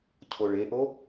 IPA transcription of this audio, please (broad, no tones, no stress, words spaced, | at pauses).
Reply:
cʰoɭeʔo